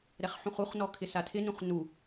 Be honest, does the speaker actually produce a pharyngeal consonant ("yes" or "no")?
yes